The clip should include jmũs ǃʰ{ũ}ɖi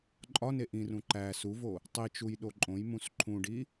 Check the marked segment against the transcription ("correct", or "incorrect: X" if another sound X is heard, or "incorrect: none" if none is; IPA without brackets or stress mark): correct